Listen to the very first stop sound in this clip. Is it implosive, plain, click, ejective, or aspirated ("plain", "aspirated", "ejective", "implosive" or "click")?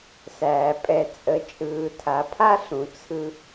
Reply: ejective